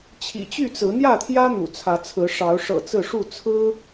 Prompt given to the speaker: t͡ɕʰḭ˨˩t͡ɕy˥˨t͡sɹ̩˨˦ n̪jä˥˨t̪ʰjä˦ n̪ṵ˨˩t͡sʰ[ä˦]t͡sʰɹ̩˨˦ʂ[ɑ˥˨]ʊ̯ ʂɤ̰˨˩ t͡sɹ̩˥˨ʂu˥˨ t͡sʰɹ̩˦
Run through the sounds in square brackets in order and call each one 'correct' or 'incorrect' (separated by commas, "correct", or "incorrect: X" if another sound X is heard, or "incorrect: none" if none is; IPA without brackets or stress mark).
incorrect: ä˨˦, incorrect: ɑ˨˦